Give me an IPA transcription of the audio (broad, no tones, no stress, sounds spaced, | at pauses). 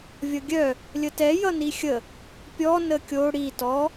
vʲ ʌ ɡʲ œ | lʲ ə t ɛ j ʌ n i xʲ ə | pʲ ɔ n ə kʲ o ɽ i t ɔ